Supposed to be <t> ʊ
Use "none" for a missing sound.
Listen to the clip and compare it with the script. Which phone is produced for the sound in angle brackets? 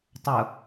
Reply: tˤ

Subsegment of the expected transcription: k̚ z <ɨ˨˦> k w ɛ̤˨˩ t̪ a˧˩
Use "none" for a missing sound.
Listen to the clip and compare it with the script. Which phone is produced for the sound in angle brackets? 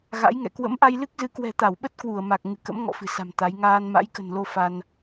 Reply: ɨ˨˦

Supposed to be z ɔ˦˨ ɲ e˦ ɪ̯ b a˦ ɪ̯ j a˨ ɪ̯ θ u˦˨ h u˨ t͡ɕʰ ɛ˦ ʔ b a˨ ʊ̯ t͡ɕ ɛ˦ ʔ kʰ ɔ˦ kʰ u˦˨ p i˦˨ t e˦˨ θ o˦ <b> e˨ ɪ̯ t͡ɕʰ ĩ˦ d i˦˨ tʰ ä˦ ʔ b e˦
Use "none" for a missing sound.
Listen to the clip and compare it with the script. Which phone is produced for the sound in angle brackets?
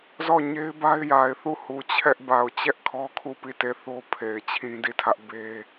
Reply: pʰ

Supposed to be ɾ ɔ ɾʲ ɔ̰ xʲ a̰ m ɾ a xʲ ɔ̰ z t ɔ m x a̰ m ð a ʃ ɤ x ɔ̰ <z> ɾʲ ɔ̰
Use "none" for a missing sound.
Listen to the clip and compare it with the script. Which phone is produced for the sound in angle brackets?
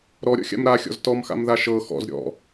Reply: z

